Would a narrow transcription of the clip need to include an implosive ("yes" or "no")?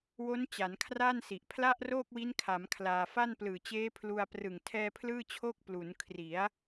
no